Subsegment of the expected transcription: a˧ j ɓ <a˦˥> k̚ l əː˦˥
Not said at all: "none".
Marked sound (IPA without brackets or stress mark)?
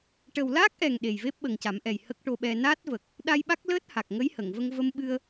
a˦˥